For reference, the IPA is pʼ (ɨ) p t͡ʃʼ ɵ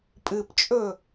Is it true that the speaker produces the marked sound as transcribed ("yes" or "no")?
yes